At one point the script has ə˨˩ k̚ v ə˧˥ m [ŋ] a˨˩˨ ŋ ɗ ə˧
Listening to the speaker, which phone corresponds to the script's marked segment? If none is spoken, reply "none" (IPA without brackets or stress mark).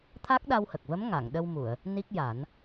ŋ